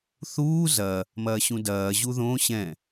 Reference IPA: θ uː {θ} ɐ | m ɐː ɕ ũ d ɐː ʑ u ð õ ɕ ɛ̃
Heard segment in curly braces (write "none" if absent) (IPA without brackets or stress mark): z